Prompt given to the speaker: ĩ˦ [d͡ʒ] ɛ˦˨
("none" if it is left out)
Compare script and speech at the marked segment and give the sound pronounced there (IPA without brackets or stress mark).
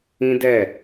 d